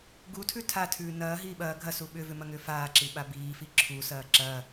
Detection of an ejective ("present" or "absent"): absent